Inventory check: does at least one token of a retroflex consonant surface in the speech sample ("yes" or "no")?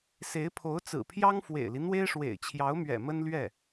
yes